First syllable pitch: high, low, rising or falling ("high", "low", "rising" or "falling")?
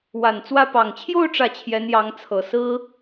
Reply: low